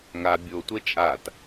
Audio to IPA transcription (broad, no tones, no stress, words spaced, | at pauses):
ŋa bʲotʷe t͡ʃʼat